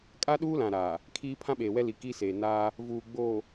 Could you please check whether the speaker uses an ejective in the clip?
yes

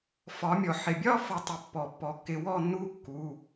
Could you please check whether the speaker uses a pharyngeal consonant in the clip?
yes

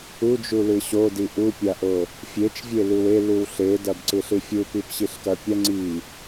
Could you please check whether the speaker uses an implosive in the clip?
no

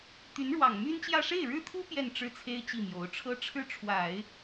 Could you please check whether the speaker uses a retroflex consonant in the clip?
yes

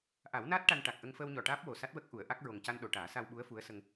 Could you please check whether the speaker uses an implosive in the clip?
yes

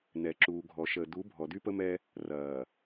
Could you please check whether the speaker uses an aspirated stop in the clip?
no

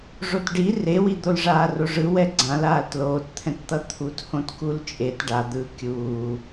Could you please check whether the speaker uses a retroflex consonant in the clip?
yes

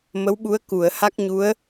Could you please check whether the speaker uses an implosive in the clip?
yes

